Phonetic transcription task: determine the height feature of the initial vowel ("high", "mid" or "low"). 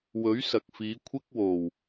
mid